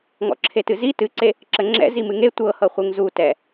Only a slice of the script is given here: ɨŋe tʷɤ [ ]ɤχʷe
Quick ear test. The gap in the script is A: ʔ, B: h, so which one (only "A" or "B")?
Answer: B